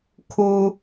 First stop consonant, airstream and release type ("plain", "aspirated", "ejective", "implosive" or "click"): aspirated